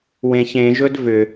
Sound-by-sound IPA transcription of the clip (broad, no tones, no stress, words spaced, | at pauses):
wẽç ẽʒɵd vʏ